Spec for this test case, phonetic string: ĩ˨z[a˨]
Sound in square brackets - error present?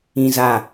no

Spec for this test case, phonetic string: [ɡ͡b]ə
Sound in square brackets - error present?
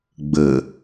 no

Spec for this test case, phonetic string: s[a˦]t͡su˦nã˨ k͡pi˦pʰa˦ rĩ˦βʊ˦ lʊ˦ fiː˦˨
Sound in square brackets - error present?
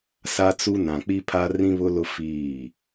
no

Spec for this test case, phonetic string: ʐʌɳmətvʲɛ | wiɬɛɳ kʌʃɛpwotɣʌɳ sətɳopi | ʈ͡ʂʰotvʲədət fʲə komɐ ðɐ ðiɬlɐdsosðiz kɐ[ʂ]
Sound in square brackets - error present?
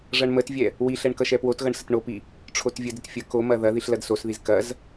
yes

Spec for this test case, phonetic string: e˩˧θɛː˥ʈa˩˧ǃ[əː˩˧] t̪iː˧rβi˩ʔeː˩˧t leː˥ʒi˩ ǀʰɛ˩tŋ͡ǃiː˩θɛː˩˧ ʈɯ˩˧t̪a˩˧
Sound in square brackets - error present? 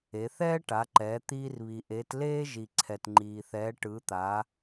yes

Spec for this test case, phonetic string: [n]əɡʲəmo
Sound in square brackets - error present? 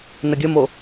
no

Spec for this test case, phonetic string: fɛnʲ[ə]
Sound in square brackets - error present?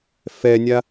yes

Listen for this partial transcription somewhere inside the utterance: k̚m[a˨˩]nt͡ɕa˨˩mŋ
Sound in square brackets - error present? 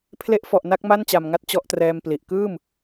yes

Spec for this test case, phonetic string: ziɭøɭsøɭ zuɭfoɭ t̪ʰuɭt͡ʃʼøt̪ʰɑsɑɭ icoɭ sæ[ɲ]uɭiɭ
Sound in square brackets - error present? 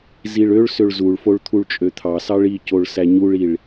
no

